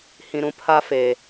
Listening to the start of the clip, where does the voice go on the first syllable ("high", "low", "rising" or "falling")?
high